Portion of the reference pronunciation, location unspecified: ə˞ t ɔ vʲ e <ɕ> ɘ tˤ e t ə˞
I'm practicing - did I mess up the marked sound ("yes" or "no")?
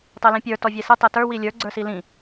yes